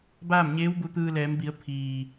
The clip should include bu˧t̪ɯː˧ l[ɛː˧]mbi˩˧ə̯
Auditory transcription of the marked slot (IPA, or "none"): ɛː˩˧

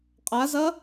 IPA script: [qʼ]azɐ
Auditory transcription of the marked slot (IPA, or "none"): qʼ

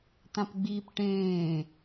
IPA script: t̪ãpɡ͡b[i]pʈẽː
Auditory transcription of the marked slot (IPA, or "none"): iː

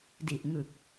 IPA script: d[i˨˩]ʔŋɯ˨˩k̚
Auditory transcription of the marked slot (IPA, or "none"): i˨˩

